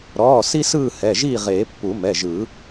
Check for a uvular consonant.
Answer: present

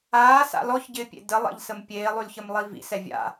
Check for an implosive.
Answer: absent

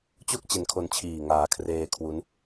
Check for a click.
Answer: absent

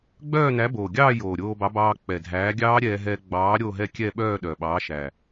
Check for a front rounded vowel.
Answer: present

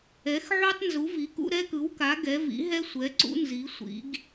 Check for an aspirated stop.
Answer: absent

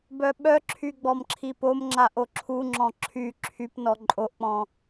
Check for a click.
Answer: present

